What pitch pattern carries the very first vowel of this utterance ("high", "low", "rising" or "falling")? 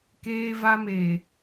high